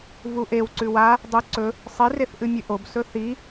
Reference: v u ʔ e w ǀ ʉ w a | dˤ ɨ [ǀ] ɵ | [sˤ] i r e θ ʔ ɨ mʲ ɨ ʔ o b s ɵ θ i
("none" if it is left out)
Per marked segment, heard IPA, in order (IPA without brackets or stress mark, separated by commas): ǀ, sˤ